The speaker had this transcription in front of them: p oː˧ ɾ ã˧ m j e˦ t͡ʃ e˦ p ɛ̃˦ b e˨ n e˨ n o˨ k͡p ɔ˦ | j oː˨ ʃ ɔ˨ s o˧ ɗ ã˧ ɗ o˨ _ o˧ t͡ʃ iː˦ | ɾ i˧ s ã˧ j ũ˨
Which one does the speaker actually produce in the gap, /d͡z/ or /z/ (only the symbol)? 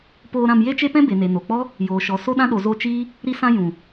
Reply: z